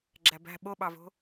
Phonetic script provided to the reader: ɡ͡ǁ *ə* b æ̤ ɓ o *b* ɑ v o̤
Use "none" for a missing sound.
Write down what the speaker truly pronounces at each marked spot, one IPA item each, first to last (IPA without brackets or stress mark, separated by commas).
æ, ɓ